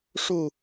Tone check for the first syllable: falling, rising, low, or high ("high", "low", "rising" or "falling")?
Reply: falling